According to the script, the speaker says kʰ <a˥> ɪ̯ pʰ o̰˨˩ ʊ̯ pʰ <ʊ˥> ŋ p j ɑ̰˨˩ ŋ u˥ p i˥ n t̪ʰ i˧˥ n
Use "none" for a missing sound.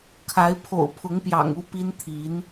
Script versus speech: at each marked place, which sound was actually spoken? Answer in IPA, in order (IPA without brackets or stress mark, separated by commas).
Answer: a˧˥, ʊ˧˥